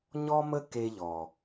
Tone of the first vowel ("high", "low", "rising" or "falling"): high